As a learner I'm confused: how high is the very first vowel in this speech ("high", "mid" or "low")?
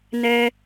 mid